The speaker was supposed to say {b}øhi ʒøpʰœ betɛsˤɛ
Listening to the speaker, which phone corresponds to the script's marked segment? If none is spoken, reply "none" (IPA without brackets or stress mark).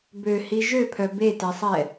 b